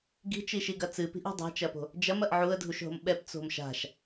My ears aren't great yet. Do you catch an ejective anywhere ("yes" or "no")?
no